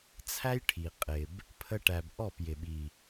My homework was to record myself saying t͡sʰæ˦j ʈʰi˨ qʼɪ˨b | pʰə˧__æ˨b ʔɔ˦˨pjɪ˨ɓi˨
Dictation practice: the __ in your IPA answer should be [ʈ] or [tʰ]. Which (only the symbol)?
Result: ʈ